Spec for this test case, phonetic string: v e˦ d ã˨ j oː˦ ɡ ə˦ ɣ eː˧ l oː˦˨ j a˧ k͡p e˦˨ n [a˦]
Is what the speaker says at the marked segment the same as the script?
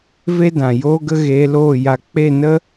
no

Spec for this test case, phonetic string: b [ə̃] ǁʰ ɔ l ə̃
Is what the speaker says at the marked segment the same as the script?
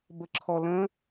no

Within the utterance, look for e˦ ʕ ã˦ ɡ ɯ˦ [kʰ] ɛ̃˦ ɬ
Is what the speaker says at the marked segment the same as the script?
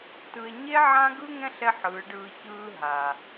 no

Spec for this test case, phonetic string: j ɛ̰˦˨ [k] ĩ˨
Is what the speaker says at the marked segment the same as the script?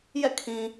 no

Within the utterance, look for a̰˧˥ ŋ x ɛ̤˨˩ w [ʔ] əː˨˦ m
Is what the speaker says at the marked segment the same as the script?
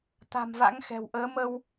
yes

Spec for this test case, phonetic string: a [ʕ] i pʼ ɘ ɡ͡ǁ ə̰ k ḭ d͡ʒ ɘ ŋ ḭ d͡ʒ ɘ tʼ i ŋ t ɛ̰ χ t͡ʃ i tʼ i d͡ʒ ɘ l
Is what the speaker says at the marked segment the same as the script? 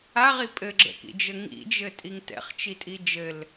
no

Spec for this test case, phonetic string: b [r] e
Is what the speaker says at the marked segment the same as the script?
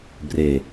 yes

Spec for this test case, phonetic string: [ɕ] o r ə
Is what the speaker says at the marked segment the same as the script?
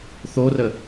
no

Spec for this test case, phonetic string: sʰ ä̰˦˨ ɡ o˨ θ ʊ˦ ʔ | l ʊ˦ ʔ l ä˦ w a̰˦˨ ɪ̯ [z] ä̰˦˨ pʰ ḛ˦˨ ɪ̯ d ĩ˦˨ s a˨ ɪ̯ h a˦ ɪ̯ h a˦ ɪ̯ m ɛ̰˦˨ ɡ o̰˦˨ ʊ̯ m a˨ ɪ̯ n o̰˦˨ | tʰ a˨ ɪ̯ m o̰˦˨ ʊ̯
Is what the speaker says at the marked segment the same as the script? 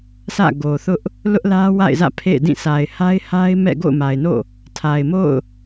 yes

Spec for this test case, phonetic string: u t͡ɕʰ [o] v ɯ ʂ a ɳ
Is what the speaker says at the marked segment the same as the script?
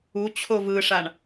yes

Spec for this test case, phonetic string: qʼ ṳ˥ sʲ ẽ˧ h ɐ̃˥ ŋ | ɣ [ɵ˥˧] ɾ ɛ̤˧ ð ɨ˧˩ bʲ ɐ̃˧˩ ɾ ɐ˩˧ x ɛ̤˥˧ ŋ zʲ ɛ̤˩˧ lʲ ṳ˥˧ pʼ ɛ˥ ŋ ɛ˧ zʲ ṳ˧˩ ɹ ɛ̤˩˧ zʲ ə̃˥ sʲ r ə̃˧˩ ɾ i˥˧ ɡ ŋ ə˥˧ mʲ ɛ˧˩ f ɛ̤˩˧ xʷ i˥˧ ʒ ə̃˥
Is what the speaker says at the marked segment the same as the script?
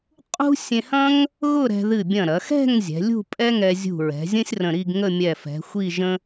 no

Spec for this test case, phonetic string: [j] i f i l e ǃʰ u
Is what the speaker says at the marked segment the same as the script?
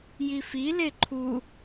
yes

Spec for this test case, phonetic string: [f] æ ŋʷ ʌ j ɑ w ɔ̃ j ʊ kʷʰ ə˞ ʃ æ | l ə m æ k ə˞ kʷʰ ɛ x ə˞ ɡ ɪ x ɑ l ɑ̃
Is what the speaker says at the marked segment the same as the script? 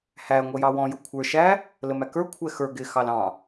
no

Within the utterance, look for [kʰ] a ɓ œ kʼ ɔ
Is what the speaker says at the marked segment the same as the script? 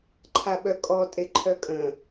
no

